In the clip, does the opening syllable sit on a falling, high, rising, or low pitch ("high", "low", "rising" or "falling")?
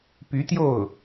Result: rising